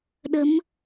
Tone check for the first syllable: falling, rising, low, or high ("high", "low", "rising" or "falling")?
rising